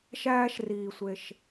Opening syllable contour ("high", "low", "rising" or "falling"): high